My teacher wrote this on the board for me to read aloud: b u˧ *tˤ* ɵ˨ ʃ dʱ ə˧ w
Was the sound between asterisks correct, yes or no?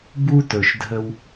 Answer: no